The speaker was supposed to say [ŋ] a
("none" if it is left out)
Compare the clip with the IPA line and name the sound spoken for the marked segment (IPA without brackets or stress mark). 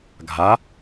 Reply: ɡʱ